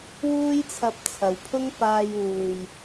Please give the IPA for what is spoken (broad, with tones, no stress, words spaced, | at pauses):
wuː˥jt͡sʰɐ˧p̚t͡sʰɐ˨wpʰʊ˥ŋ paː˧juː˨j